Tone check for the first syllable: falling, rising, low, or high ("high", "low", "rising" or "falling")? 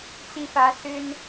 high